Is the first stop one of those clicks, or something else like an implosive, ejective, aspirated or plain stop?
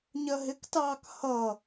plain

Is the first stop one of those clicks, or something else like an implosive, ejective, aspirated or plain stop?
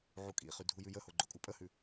ejective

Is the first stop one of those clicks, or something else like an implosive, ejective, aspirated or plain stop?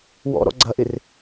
click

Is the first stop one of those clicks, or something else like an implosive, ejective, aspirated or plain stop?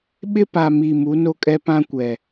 implosive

